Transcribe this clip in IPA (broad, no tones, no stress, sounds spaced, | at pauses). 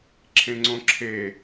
ǁʰ ẽ ŋ͡ǀ õ ǁʰ e